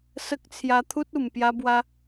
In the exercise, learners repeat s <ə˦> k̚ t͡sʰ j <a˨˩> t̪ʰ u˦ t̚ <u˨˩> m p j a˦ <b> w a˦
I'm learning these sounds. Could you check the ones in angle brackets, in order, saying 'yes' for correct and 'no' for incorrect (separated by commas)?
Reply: yes, no, yes, yes